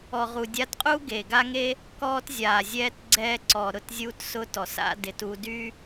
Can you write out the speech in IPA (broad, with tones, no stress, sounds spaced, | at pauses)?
ɔ˨ ʁ u˨ dʲ a˧ t qʼ u˦ ɡ e˨ ɡ a˦ ŋ e˦ | k ɔː˦ t zʲ aː˨ zʲ ɛː˦ t ɡ͡ǀ ɛː˧ ǀ ɔ˨ ɾ ʊ˦˨ t zʲ uː˦ t s ʊ˦ t ɔ˨ s a̰˧ d ɪ˨ t u˧ d y˦